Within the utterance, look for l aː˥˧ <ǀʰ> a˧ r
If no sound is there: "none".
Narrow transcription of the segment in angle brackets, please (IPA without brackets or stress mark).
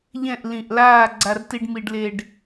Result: ɡ͡ǀ